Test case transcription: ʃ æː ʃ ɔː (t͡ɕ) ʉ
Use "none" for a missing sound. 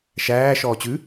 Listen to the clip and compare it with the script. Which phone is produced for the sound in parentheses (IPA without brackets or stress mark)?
t͡ɕ